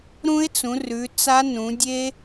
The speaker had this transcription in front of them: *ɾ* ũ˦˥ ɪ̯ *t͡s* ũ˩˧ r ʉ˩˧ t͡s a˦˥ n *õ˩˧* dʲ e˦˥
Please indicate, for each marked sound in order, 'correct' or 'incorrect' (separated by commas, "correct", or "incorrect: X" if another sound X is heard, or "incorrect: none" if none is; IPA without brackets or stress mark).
correct, correct, incorrect: ũ˩˧